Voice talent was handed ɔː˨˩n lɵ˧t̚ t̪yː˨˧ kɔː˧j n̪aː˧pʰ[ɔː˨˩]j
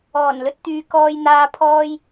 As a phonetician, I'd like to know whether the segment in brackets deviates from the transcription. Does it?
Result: yes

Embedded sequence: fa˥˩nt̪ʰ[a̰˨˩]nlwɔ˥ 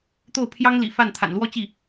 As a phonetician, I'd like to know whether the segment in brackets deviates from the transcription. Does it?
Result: no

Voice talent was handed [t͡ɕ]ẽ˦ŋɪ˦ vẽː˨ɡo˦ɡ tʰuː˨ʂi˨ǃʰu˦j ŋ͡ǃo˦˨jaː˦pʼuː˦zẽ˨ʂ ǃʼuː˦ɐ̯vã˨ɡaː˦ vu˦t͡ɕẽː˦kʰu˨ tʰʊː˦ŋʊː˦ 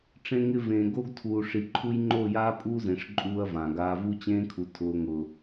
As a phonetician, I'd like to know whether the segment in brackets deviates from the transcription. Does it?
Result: yes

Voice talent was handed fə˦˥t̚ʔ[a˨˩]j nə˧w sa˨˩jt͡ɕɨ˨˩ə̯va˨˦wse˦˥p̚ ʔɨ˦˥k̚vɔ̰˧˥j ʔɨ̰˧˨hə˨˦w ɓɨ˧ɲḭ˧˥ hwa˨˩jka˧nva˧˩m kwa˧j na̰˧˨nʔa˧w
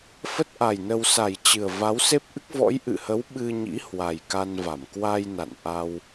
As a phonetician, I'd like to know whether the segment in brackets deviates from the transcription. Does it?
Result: no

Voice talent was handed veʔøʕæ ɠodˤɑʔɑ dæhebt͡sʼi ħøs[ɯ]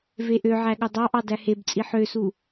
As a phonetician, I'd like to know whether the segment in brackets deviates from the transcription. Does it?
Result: yes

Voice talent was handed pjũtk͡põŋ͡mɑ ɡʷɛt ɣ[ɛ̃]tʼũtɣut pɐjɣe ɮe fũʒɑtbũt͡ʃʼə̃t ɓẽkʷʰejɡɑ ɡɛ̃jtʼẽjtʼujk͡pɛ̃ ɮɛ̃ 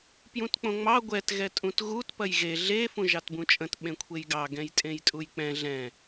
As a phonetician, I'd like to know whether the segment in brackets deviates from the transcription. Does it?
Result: yes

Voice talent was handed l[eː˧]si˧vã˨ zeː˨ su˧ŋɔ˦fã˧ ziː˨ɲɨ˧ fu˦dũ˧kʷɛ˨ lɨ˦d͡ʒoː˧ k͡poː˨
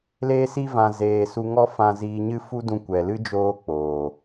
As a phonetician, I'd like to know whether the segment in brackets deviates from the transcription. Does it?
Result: no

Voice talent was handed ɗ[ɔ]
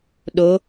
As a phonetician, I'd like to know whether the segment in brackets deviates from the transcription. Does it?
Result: yes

